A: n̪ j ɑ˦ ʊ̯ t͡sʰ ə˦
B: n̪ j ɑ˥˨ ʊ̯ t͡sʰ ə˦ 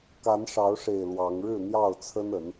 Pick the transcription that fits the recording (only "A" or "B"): B